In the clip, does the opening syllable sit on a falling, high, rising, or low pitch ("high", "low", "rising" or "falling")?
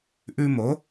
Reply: high